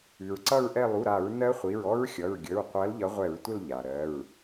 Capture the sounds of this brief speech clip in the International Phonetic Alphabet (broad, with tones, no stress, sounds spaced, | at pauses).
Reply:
ʉ˩ ɹ ǀ ʌ˦˨ ɹ ʔ ɛ˦˨ lˠ u˩˧˩ ɾ a˧˩˧ ɹ n ɜ˦˥ χʷ i˩˧˩ ɹ ɔ˦˥ ɹ xʲ ʌ˩˧˩ ɹ ɡʲ ə˩˧˩ ɹ qʷ ɜ˨˦ l ʎ ʌ˨˦ ʁʷ ɛ˧˩˧ ɹ tʷ ə˦˨ l ʎ a˩ ɾ ɜ˩˧˩ ɹ